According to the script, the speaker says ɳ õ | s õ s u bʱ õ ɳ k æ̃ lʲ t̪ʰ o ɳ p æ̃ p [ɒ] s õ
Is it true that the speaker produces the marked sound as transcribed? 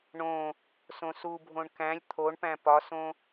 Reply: yes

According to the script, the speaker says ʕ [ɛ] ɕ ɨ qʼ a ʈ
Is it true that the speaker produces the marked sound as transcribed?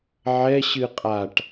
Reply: yes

